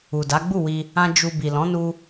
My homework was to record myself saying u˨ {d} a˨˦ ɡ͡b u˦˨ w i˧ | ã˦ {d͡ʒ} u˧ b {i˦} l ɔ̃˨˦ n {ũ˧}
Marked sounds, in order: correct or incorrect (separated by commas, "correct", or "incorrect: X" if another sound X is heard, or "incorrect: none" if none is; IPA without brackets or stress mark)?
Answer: correct, correct, incorrect: i˨, incorrect: u˧